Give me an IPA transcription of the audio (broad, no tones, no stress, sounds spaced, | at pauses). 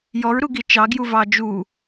j ɔ ɹ ɾ u ɡ i t͡ʃ ɑ ɡ j u v ɑ d͡ʒ u